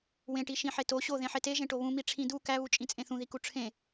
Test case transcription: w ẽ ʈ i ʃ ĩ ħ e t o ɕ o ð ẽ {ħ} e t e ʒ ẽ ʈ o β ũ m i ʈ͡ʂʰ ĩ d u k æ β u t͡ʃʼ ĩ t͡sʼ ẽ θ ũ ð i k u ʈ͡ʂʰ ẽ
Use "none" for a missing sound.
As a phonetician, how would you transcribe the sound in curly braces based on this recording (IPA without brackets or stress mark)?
ħ